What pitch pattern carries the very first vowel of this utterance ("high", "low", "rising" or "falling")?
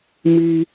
high